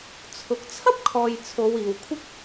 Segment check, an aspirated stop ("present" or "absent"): present